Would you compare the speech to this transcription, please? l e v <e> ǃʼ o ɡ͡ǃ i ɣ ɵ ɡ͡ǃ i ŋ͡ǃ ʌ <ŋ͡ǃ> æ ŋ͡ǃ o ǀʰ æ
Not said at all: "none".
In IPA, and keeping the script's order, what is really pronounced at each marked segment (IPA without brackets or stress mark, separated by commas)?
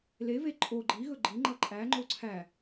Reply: e, ǃʼ